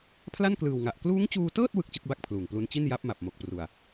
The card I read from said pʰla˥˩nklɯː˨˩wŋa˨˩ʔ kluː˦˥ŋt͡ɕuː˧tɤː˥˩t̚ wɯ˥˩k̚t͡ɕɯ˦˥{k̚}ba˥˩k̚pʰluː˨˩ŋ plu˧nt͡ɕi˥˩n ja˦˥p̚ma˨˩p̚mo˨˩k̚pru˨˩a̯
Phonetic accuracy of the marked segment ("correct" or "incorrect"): correct